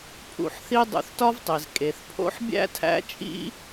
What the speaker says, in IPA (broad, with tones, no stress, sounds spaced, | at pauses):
pʰ ṵ˧ ħ θ i˦ dˤ ṵ˧ θ t ɒ˦ v tˤ i˨ z kʼ e˨ θ pʰ o̰˦ ħ bʲ æ̰˦ tʰ æ̰˦ t͡ʃʼ ḭ˦